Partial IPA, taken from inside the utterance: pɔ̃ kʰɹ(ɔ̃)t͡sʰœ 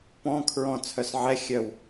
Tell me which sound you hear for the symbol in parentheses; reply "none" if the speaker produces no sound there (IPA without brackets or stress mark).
ɔ̃